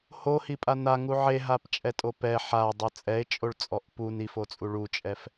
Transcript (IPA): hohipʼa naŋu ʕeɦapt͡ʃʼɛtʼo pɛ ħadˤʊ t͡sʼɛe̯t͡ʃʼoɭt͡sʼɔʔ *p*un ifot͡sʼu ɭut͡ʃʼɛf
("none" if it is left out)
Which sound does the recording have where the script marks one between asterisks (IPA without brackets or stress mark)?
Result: p